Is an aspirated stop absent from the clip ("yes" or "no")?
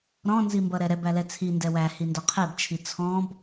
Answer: no